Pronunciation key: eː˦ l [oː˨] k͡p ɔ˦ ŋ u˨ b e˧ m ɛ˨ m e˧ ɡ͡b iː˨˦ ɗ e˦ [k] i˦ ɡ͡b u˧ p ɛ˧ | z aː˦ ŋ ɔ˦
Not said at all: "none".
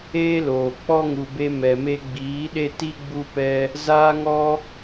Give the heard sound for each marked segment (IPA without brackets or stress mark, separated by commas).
oː˨, t